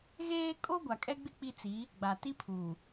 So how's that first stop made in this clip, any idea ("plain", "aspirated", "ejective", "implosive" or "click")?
ejective